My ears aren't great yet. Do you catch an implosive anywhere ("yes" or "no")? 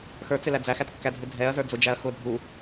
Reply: no